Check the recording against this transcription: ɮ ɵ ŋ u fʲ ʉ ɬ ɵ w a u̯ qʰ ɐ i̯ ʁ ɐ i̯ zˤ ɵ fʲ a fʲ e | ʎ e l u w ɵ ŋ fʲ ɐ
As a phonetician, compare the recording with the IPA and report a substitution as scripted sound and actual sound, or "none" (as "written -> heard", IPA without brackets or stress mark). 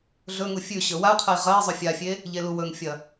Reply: ɬ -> ɕ